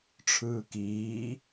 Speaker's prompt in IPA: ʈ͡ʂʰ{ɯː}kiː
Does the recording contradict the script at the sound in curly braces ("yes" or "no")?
no